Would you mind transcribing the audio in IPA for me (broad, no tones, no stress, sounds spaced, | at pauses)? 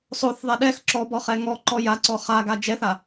sˤ o θ ðˤ ɛ ɗ ɛ x ǁ ɔ b ɔ χ ɛ ŋ ɔ ǃ ɔ j a ǀ ɔ χ a ɡ a d͡ʒ ɛ θ a